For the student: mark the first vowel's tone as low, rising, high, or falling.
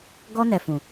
high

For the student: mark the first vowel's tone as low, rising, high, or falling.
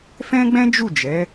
high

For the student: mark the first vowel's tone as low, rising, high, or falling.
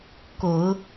low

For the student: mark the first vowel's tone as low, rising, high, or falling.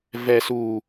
low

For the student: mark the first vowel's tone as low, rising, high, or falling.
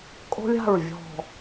high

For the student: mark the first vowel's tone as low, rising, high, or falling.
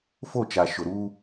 falling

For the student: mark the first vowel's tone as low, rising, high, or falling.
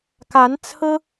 rising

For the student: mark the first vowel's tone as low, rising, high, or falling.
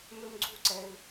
high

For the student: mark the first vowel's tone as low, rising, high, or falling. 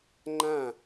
falling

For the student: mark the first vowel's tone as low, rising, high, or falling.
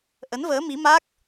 rising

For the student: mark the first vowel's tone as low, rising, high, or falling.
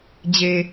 low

